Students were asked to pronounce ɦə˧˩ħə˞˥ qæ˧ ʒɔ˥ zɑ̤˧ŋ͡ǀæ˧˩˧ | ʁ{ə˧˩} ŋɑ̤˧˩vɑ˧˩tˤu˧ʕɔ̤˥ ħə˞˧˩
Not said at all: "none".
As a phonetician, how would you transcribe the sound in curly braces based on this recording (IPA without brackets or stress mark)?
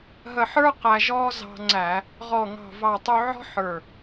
ɔ˧˩